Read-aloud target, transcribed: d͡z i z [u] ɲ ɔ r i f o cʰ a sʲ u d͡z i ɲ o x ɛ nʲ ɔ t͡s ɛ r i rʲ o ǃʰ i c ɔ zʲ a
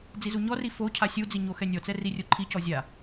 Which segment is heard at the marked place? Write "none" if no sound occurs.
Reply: u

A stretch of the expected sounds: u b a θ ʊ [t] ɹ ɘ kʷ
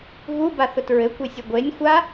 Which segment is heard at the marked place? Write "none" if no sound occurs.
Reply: t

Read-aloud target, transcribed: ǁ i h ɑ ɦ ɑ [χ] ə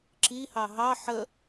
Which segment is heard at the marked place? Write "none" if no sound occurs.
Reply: ħ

